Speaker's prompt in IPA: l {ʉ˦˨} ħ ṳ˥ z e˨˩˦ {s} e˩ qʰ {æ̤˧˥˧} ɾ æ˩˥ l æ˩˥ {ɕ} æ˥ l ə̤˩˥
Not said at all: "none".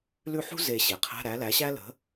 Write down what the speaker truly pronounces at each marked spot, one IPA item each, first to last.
ʉ˦˨, ɕ, æ̤˧˥˧, ɕ

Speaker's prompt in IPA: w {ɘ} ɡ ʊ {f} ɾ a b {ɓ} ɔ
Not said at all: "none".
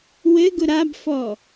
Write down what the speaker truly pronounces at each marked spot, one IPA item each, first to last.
ɘ, none, f

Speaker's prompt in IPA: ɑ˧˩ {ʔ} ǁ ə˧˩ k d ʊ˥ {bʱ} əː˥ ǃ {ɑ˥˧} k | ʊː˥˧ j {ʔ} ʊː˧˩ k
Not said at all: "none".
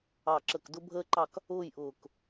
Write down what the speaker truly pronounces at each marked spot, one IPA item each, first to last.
none, bʱ, ɑ˥˧, ʔ

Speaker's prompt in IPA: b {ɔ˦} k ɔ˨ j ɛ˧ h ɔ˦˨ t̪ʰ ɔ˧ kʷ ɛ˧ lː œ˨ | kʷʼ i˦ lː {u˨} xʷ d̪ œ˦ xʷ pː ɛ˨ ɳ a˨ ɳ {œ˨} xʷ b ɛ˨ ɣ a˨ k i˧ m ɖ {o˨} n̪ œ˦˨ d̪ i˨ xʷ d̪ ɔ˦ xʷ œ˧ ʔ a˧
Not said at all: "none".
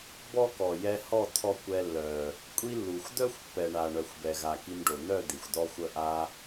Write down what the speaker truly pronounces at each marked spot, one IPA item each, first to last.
ɔ˦, u˨, œ˨, o˨

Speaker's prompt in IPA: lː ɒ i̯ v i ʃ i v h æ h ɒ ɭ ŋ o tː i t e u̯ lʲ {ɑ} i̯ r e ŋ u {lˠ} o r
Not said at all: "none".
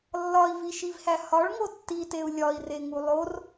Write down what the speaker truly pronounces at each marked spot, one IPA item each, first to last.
ɒ, lˠ

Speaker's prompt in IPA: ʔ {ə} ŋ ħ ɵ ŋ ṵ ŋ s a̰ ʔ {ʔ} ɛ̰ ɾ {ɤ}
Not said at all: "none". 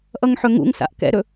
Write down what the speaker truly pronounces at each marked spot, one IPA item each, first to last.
ʌ, k, ɵ

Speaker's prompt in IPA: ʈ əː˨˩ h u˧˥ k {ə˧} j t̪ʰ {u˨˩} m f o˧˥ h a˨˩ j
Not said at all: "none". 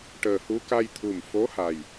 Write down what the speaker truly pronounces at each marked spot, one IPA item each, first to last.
a˧, u˨˩

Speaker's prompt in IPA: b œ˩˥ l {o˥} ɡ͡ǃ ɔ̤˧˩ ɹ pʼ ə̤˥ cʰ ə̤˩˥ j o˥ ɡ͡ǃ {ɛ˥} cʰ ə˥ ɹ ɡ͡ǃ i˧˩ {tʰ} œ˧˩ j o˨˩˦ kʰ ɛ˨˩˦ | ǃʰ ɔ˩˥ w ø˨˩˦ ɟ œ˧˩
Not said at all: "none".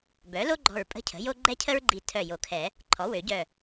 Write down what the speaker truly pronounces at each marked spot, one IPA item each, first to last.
o˥, ɛ˥, tʰ

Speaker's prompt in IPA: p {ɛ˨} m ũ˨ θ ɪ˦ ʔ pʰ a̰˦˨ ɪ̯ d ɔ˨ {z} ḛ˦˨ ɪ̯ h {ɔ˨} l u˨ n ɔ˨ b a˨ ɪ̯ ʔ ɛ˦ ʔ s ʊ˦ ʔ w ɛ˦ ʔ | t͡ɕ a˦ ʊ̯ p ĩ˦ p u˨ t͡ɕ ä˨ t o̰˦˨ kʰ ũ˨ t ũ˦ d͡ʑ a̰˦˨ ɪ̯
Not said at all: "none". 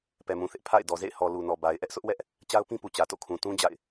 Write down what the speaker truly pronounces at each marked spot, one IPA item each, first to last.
ɛ˨, z, ɔ˨

